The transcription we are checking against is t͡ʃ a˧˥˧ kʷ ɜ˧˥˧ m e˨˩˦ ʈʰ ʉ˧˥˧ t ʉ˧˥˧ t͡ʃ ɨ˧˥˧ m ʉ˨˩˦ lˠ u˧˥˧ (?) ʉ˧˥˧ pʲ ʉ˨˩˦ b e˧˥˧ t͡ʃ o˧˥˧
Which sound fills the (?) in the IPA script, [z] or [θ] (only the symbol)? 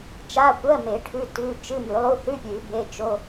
θ